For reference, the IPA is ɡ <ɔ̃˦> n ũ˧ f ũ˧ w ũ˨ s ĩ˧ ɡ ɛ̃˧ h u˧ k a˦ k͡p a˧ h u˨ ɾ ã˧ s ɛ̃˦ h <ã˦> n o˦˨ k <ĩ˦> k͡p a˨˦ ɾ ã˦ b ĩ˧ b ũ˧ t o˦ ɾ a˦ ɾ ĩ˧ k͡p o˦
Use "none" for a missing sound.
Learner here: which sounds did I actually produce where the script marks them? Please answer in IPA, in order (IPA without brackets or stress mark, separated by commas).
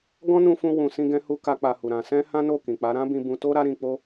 ɔ̃˦, ã˦, ĩ˨